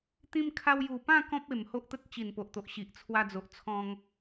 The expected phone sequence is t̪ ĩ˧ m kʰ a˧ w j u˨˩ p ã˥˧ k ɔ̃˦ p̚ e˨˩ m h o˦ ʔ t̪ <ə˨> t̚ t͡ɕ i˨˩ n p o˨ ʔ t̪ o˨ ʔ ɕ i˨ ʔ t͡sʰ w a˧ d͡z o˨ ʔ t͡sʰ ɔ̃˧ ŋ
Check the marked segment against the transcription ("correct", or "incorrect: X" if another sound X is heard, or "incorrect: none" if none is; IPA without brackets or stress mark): incorrect: ə˦